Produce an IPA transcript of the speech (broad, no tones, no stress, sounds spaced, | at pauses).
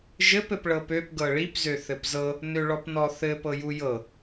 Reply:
ʒ ɘ p ɘ p ɭ ɤ p ø p ɡ ɤ ɭ i p z ø θ ɘ p z ɤ | n ø ɭ ɔ p n ɔ θ ɘ p ɤ j u j ɤ